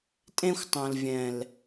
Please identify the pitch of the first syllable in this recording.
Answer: high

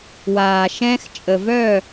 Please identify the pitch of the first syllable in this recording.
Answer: low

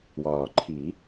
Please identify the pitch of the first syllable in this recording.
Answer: low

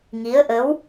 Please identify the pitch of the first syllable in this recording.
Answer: rising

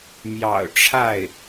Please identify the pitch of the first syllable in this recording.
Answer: low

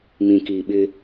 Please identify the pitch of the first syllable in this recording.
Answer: low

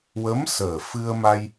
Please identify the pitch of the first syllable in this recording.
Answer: rising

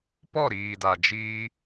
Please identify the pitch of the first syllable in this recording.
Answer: falling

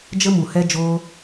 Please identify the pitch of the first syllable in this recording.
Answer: high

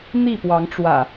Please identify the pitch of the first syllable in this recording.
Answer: falling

